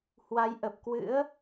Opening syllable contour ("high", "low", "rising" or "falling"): rising